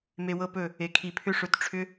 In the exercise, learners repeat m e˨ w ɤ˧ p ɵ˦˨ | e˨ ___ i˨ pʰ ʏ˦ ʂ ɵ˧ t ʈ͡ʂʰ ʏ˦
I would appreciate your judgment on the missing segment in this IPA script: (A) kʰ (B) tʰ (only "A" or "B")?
A